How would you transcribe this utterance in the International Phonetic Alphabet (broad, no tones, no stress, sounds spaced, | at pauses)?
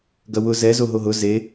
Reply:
ɡ ɐ w ʊ z ɛ z o ɦ o ɦ ʊ z e